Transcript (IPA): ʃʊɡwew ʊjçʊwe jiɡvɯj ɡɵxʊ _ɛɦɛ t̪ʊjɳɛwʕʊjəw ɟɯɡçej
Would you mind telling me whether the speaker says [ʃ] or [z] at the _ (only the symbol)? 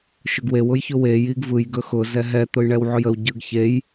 z